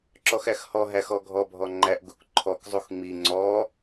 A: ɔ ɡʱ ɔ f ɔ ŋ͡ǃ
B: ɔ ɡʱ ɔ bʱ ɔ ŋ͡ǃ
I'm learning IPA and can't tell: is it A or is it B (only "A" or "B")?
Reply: B